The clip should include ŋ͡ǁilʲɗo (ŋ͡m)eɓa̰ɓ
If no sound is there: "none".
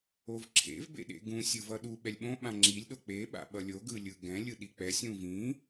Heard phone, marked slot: k͡p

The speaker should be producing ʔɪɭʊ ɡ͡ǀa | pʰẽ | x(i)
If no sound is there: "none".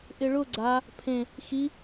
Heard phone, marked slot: i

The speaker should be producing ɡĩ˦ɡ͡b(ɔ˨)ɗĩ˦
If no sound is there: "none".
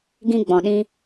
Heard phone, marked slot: ɔ̃˨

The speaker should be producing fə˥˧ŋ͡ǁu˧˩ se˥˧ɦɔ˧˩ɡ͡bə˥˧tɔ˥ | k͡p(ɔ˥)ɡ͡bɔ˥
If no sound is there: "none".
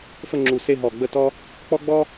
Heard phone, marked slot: ɔ˥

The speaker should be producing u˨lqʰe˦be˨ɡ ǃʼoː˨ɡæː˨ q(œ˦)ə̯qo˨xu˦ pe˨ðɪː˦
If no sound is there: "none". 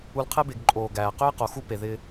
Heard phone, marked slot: ø˦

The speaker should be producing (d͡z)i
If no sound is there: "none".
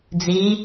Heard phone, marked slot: d͡z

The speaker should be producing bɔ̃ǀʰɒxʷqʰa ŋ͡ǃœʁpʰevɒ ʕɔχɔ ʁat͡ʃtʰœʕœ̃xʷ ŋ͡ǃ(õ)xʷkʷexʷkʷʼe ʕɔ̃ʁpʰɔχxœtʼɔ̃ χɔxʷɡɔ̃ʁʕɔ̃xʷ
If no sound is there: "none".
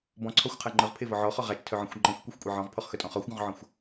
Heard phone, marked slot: ɔ̃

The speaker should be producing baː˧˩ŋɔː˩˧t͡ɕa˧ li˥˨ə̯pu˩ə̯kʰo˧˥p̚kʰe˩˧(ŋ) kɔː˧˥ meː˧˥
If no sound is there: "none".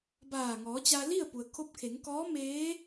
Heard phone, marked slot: ŋ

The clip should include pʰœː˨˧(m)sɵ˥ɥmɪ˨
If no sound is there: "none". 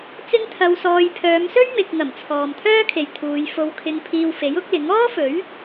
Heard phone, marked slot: m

